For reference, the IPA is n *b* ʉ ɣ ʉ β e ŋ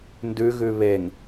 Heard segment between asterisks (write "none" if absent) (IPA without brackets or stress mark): d